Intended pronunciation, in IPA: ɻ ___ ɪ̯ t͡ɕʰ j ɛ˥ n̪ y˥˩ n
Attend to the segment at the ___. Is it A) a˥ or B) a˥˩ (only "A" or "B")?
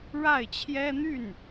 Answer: B